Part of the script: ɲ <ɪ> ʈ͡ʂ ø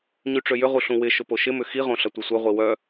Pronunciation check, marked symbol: incorrect: y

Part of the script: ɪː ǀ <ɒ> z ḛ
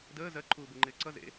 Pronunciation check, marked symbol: incorrect: ʌ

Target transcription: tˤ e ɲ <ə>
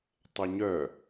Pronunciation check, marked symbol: incorrect: œ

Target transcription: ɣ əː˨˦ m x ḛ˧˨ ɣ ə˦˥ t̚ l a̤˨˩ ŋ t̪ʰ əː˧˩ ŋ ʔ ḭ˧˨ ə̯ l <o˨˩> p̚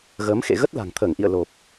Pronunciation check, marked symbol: correct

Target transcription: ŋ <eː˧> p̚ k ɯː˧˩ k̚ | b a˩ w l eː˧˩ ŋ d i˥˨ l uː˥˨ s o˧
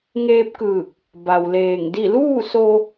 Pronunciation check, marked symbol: correct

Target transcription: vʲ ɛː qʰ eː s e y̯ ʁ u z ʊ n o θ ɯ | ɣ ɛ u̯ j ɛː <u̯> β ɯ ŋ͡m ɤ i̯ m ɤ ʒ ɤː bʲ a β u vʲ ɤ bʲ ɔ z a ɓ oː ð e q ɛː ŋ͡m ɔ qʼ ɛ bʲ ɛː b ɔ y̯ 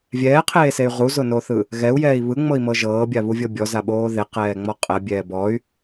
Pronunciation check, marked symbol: incorrect: i̯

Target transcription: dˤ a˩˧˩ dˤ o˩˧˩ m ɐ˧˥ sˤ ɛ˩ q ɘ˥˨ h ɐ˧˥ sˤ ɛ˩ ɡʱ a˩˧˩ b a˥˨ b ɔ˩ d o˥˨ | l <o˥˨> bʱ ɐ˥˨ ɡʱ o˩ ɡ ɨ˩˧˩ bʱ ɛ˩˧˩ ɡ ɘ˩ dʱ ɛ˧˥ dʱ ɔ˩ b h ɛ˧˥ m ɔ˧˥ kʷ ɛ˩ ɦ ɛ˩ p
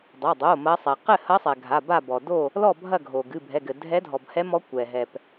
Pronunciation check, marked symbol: incorrect: ɔ˥˨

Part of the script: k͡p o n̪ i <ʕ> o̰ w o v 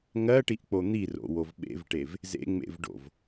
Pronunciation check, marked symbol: incorrect: r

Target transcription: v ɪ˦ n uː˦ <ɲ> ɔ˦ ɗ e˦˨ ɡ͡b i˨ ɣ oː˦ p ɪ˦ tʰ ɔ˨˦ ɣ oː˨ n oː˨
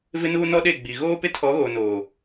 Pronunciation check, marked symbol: incorrect: n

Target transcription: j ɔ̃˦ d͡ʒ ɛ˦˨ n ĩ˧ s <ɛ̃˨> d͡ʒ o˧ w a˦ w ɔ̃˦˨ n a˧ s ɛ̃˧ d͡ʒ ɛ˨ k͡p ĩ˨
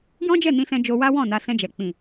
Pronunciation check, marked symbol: incorrect: ɛ̃˧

